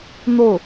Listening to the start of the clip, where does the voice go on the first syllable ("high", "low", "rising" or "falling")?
falling